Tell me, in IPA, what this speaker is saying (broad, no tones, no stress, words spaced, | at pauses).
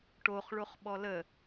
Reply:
ʈoχ ɭoχɓɔlə